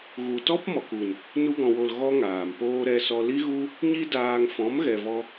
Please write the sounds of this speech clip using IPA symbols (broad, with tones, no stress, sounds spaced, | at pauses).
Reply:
ɣ u˨ t ɔ˦ p m ɔ˨ k u˨ n | n u˧ ɡ ɔ̃˨ w o˨ l ɣ ɔ˦ ŋ aː˨ m p oː˦ ɾ ɛ˧ s ɔ˧ l i˦ ɣ u˦ | ɲ i˦ d aː˧ ŋ f ɔ̃˨˦ m ɣ ɛ˨ v ɔ˧